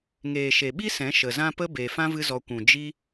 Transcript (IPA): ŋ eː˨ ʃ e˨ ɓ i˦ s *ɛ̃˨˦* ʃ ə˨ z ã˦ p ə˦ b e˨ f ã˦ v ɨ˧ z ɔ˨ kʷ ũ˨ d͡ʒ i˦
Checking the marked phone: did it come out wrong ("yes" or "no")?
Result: no